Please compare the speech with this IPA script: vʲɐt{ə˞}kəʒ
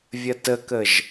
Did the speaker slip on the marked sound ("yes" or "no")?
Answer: yes